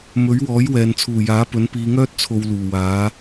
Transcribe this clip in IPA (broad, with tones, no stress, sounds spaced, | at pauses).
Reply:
m ɵ˨˥ ɥ w ɔː˨˥ j w ɛː˨ n t͡sʰ uː˨˩ j aː˨˥ p ɵ˨˥ n p iː˨˧ ŋ œː˥ t̚ t͡sʰ o˧ w l uː˨˩ w aː˨˥